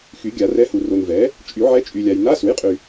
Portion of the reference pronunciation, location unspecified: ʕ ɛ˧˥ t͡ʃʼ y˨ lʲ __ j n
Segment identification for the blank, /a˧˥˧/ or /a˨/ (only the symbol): a˨